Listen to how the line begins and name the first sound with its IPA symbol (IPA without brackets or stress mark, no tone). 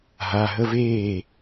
ɦ